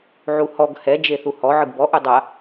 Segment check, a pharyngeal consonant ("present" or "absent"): present